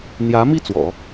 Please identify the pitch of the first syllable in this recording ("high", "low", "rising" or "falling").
rising